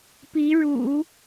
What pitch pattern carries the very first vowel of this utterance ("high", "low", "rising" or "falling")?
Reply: rising